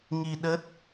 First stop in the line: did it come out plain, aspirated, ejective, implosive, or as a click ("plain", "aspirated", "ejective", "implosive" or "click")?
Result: implosive